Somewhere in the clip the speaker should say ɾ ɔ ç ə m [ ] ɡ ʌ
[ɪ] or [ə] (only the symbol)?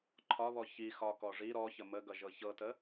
ə